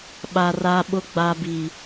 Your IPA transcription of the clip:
ɓa˨ ra˨ɓʊ˨ ɡ͡ba˨bi˨

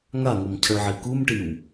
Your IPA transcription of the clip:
ŋaŋomcʰʌɭʕi kumʈiw

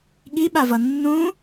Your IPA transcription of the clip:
ɠiɓavʌ nːũ

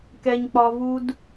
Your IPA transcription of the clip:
kɛ˦ɲk͡pɒ˦vu˦d

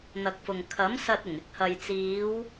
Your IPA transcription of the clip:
n̪ɐ˨k̚fʊ˨ŋ kʰɐ˨˥msɐ˧t̚ ɪ˨˩ŋɪ˨˥k̚hɐ˨jt͡siː˨˧w

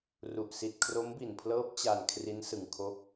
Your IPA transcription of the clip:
ru˨˩ʔsi˨˩t̚ kʰro˦˥mbi˨˩npʰlɤː˦˥p̚ t͡ɕa˨˩n kʰri˦˥n sɯ˧ŋkʰo˥˩k̚

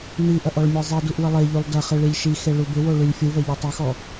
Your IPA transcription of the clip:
niʔɐʔ ɔɭmʲezˤiduʔ wəlˠeʎylˠ dɐχi ɭilʲʃixe ɭubɪwo ɭylʲfʲuvɐ ʎytˤyxɔ

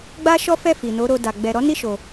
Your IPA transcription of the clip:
ɡ͡ba˦ ʃɔ˦fɛ˦˨ fi˨no˨˦ɾo˧ da˨ ɡ͡bɛ˨ɾɔ˨˦ ni˦˨ʃo˨

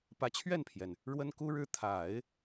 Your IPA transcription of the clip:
pä˧˥t͡ɕʰɥɛ˥˩npʰjɛ˩n | ɻwə˥nku˥ɻɻ̩˥˩ t̪ʰa˨˩˦ɪ̯

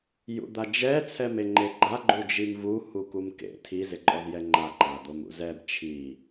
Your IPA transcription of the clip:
jṵd̪ad͡ʒɛ t͡sʰɛmeŋ͡ǃeɡ͡ǃa ɡ͡ǃud͡ʒimvu hukumkḛ tʰi zɪǃʼɔzjɛŋ͡ǃa ǃad̪omṵzɛb t͡ʃʰi

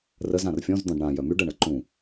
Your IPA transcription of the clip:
rəz ãrfʲɔ̃z d̪ɔ̃ɖɳã jœmyɖ əɳəǃũ

